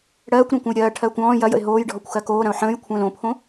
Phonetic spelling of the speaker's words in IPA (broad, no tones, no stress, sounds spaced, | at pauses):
ɽ ɜː kʷ ɾ õ kʷ ə̃ j ɾʲ ɜː ʈʰ ɜː kʷ ɔ̃ː j ɐ j ə̰ ɪ̯ ɦ oː j ɖʱ ɔ kʷ x ɜ k oː ɾ ɐ̃ ʊ̯ ħ ə̃ː j kʷʰ ə̃ː l õ pʰ õ